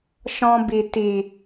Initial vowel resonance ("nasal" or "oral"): nasal